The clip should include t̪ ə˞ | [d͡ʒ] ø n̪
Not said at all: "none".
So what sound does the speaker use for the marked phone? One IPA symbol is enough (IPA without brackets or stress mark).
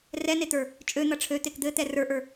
t͡ʃʼ